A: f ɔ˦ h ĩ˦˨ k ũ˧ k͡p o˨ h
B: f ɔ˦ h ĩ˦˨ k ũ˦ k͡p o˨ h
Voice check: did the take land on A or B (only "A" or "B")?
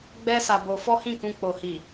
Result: A